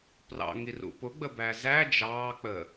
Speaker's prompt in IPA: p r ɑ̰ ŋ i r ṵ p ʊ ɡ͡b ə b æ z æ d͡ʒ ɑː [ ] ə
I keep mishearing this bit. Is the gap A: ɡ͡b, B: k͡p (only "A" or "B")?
B